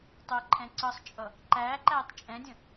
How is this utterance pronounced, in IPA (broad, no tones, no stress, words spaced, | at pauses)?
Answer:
tˤɜǃʰɛ̃ ǀʌsˤt͡ʃʼʌ | ǃæːǃæːtˤ t͡ʃʼɛ̃dʲə̃